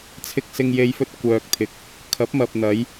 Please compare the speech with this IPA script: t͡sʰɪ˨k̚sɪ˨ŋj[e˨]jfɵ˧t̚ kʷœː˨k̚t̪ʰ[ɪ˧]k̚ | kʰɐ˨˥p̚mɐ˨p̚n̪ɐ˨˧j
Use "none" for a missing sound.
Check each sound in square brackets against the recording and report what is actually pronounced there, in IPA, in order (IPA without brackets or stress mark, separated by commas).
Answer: e˨, ɪ˨